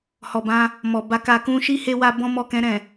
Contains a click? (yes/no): no